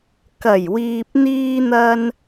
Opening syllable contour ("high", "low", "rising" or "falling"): low